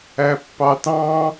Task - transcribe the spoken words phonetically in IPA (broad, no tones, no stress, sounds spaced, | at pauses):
æ pː ɑ t ɑ̃